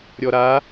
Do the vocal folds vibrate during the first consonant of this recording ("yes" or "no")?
yes